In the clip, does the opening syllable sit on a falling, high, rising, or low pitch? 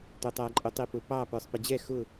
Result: low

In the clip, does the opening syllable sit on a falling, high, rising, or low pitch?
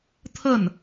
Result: falling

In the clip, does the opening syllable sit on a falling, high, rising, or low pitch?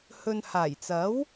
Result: low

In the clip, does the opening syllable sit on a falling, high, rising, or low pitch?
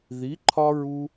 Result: rising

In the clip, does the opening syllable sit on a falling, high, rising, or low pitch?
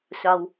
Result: high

